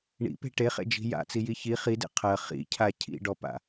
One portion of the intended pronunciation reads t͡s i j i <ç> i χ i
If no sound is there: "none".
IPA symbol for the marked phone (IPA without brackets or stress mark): ç